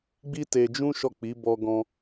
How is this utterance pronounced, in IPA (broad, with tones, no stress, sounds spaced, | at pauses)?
ɡ͡b i˦ t e˧ d͡ʒ ũ˦ ʃ ɔ˦˨ k͡p i˨˦ b ɔ˧ ɡ ɔ̃˧